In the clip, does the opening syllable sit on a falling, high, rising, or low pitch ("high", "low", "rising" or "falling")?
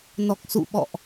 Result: low